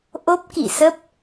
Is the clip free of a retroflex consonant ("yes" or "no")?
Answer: yes